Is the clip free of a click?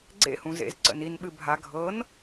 no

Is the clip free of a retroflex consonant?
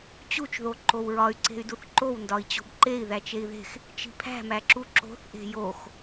yes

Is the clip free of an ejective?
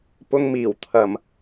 yes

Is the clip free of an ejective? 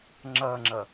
yes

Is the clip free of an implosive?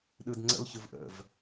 no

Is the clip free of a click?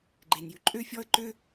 no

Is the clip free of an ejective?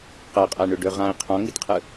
no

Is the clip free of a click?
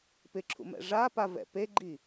no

